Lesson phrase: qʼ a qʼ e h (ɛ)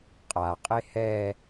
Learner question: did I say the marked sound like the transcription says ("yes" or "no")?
yes